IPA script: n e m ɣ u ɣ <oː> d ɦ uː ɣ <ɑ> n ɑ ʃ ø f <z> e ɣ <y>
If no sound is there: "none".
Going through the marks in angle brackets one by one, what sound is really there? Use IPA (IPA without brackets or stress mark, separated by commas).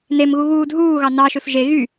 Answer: uː, ɑ, ʒ, y